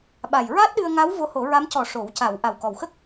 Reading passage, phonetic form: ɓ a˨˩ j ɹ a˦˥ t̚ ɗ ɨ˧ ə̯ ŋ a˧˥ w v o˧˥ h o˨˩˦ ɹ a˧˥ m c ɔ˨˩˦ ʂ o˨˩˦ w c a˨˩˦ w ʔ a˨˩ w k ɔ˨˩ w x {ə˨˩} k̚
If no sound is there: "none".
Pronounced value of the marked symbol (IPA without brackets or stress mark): ə˦˥